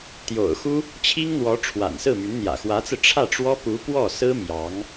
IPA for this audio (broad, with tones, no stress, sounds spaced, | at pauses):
t̪ j o̰˨˩ ʊ̯ x u˥ | t͡ɕʰ i˥ ŋ n̪ w ɔ˧˥ ʈ͡ʂʰ w a̰˨˩ n s ɹ̩˥˩ m y˧˥ n n̪ j ä̰˨˩ x w ä˧˥ t͡s ɹ̩˧ ʈ͡ʂʰ ä˥˩ ʈ͡ʂ w ɔ˥ p u˧˥ p w ɔ˥˩ s ɹ̩˥ m j ɑ˧˥ ŋ